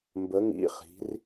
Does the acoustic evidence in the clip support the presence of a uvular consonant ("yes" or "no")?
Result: yes